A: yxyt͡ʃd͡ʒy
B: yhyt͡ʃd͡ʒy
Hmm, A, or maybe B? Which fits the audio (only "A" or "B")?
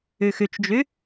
A